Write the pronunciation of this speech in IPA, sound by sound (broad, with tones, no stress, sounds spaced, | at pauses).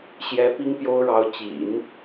ɕ j ɛ˧˥ p i˥ ŋ p j o˥ ʊ̯ ɻ ɑ˧˥ ʊ̯ t͡ɕ ḭ˨˩˦ n